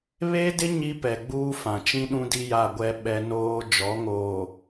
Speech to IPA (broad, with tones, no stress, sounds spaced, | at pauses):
β eː˦ d ɪ˦ ɲ i˦ p ɛ˨ ɡ͡b uː˦ f ã˨ t͡ʃ ĩ˦ ɗ ũ˦ d i˦ j a˦˨ ɡʷ ɛ˦ ɓ ɛ˦ n oː˦ d͡ʒ ɔ˨˦ ŋ oː˨